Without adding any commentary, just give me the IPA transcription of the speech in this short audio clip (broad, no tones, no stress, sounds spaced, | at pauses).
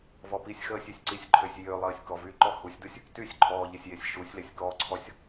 v ɔ p i sʲ x əː sʲ y sʲ ǀ i sʲ ǃʰ ø sʲ j ø lˠ əː sʲ k ɔ v y ǃ ɔ h u sʲ d u sʲ | t y sʲ ǃʰ ɔː ʎ ə sʲ j e sʲ ʃ u sʲ l e sʲ k ɔ ǀʰ ɔ sʲ